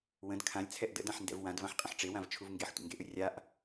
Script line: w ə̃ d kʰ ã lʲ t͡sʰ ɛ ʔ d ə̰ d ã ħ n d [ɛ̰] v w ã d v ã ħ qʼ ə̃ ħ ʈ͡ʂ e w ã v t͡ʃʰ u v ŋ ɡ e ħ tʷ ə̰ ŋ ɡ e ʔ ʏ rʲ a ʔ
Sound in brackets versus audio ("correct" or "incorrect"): correct